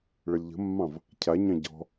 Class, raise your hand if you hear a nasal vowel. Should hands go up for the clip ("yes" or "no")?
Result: yes